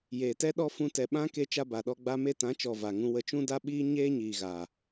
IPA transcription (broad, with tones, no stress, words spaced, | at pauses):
jeː˨tɛ˦ɗɔ˦ fũ˧tɛ˨ɓã˦ ke˧ t͡ʃa˧ba˨ɗɔ˧ ɡ͡ba˧me˧tã˨˦t͡ʃɔ˨ va˨ŋũ˧ wə˧t͡ʃũ˦da˦ɓiː˦ ɲeː˦ɲiː˨ɣa˨